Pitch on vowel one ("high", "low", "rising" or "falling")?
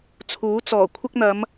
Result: rising